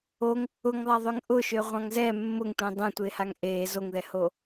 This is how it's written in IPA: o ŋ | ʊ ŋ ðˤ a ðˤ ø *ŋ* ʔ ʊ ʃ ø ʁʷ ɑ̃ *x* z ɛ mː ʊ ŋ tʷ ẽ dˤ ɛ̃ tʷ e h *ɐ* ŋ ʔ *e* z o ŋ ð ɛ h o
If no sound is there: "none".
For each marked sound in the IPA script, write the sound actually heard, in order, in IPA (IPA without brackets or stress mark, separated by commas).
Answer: ŋ, ŋ, a, eː